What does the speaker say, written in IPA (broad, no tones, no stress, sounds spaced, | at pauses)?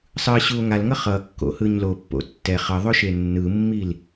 sˤ ɯ ɕ u o̯ ŋ a l ŋ ʌ χ ʌ kː o̰ h ɯ ɲ l o pː o̰ tː ɛ χ ʌ ðˤ o ʃ e nː ɯ mː i l